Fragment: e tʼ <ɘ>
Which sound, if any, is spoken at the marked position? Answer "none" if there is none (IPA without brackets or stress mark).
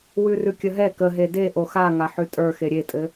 ɘ